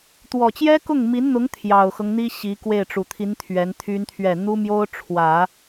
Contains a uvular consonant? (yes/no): no